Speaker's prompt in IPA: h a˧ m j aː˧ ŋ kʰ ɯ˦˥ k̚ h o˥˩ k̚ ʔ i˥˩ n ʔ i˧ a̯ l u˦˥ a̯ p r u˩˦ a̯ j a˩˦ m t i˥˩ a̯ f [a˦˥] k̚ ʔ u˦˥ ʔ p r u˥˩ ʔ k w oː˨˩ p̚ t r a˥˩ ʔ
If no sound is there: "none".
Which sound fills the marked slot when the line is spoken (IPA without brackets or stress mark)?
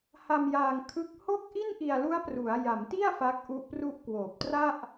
a˦˥